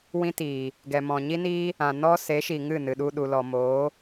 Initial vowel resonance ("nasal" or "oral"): nasal